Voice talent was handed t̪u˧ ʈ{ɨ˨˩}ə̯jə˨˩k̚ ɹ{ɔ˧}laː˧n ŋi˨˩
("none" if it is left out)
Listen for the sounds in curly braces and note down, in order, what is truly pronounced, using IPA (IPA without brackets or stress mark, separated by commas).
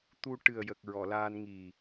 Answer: ɨ˨˩, ɔ˨˩˨